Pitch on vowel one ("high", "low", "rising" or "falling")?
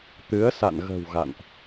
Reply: rising